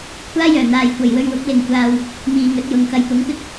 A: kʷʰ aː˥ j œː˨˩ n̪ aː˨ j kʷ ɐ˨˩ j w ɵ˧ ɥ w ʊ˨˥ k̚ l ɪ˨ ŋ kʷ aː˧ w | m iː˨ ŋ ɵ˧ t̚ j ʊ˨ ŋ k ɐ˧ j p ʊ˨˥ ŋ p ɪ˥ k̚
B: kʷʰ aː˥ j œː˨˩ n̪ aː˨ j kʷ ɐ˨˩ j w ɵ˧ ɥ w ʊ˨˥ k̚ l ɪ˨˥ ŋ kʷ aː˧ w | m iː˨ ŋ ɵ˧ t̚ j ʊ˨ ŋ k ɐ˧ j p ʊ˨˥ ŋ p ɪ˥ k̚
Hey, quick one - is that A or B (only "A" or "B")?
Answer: A